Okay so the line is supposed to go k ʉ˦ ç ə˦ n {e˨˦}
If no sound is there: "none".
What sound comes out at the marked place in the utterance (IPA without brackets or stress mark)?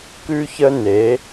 e˨˦